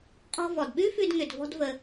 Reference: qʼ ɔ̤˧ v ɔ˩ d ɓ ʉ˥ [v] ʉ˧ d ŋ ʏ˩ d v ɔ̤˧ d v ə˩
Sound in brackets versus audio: incorrect: f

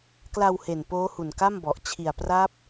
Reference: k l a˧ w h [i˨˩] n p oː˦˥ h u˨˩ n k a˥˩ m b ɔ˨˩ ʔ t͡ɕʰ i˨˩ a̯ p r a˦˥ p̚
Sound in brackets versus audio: incorrect: e˨˩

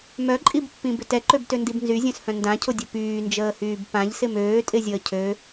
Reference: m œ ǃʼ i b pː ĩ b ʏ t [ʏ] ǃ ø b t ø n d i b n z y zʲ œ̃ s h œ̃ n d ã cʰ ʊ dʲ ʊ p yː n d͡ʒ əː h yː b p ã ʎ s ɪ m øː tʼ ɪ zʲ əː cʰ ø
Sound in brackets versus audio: incorrect: ɛ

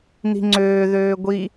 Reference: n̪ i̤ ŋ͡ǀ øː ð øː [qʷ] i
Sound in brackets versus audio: incorrect: ɡʷ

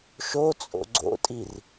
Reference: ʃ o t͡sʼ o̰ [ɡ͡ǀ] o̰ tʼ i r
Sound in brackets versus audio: correct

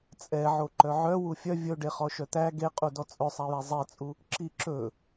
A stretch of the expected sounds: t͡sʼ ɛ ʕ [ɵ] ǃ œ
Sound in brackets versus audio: incorrect: o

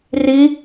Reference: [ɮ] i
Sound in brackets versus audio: incorrect: r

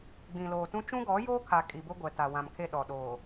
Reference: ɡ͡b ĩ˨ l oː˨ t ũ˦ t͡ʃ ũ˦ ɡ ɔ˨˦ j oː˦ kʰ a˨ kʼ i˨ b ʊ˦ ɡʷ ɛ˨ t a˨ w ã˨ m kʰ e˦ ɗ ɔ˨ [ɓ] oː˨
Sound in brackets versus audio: incorrect: ɗ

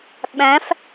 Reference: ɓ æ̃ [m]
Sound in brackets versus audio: incorrect: f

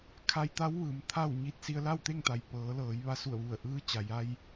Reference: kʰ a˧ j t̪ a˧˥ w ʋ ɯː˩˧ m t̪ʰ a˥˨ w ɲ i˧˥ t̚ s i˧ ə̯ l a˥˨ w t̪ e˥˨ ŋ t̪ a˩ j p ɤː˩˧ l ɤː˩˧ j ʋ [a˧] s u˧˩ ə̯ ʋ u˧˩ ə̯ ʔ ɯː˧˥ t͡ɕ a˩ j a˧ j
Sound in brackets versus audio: correct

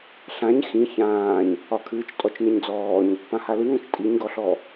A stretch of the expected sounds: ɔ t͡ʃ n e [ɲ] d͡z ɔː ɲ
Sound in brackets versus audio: correct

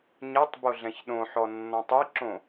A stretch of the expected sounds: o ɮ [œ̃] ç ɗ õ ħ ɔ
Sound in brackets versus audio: incorrect: ɛ̃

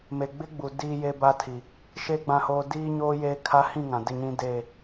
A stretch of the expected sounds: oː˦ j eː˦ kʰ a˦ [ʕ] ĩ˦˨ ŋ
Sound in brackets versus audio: incorrect: h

